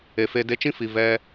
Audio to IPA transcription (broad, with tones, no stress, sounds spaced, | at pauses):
e˨ f e˧ d e˧ t͡ʃ ĩ˦ f i˨ v ɛ˧